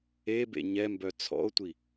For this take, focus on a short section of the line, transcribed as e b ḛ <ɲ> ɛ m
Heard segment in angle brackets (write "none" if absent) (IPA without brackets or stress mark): ɲ